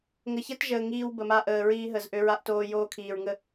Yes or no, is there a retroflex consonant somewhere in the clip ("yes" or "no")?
no